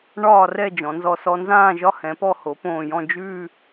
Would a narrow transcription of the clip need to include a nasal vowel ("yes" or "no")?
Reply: yes